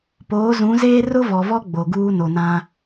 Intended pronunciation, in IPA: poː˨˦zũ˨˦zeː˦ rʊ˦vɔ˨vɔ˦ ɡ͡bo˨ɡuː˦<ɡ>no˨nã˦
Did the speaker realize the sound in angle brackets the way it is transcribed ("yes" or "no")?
no